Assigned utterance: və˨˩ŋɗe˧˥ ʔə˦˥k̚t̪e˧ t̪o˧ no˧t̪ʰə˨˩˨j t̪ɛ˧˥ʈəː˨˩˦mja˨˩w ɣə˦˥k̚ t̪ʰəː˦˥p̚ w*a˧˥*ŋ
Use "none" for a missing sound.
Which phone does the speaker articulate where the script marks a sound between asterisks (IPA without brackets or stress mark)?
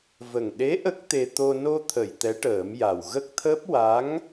a˧˥